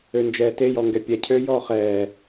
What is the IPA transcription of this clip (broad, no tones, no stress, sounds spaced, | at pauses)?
ø n d͡ʒ ɛː t e j ɔ ŋ ɡ ɛ pʲ ɛ cʰ øː j ɔː χ ɛː